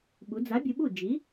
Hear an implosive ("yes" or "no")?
yes